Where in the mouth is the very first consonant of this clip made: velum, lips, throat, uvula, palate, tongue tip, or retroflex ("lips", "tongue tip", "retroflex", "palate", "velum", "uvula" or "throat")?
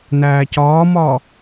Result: tongue tip